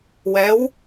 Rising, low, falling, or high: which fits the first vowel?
rising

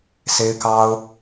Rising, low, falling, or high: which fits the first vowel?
high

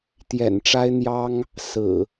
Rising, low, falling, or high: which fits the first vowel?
low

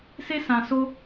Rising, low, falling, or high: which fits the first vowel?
high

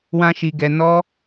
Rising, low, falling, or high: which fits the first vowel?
high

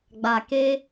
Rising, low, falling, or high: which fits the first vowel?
low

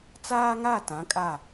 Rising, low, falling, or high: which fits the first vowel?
high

